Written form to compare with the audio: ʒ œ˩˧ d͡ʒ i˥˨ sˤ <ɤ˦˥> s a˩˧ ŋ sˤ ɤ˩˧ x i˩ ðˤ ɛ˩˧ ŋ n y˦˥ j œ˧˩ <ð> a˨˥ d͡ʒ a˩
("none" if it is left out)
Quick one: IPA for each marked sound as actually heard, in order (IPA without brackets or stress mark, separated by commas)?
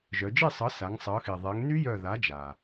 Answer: ɤ˨˥, ð